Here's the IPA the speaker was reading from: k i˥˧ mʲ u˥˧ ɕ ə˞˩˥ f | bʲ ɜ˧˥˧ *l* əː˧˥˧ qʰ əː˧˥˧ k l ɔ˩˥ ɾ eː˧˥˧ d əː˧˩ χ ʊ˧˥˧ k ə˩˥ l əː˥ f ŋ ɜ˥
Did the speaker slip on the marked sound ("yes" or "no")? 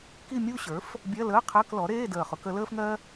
no